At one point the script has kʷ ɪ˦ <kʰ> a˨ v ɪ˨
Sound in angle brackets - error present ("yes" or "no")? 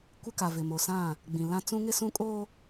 yes